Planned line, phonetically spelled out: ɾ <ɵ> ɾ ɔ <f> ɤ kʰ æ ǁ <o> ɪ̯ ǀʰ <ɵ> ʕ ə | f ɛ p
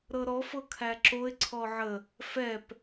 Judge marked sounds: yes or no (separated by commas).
no, yes, yes, no